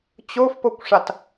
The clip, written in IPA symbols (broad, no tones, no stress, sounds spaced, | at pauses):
t͡ɕ o f p o kʷ ʂ a t